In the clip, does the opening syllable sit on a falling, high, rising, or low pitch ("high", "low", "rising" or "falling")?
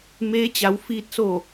rising